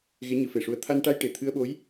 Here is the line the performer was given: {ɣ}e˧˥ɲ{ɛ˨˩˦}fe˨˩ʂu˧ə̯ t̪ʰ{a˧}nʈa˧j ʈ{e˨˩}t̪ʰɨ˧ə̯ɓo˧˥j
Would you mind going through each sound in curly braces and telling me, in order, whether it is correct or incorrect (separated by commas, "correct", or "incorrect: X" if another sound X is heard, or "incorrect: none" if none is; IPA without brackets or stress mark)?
correct, incorrect: ɨ˨˩˦, correct, correct